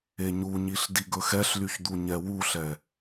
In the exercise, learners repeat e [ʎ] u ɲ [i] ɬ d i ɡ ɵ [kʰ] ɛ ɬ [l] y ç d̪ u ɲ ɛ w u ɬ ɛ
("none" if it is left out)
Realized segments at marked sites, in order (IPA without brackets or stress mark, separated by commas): ɲ, i, x, l